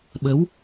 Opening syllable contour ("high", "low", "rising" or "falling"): rising